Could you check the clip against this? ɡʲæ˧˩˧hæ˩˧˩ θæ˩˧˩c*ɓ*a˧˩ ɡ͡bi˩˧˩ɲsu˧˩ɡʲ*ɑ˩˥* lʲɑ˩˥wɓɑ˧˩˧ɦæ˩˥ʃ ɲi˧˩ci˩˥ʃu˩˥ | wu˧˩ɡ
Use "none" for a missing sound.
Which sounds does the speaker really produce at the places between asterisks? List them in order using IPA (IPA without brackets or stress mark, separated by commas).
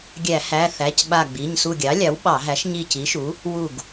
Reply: ɓ, ɑ˩˥